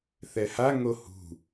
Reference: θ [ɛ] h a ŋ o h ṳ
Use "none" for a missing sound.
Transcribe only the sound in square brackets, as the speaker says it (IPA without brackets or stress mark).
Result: ɛ